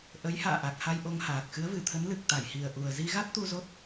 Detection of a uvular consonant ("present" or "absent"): absent